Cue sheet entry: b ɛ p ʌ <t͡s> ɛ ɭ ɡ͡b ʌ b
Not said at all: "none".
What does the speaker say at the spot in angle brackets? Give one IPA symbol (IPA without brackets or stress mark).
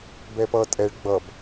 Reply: tʼ